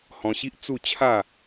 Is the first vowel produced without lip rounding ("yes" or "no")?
no